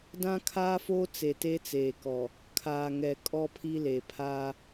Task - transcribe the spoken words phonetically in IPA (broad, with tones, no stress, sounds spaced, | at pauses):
d ã˦ kʰ aː˦ f oː˦ t͡s e˨ t e˦ t͡s eː˨ k ɔ˨ | kʰ aː˨ ŋ ɛ˨ kʼ ɔ˦ pʰ i˦ l e˨ pʰ aː˦